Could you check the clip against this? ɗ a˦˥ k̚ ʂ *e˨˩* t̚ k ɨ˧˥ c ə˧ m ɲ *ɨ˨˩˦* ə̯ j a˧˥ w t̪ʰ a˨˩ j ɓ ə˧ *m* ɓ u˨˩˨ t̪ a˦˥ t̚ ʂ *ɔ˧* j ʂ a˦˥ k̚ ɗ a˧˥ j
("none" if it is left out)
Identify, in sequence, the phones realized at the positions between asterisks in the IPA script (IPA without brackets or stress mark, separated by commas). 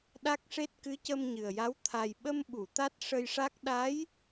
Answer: e˦˥, ɨ˨˩, m, ə˧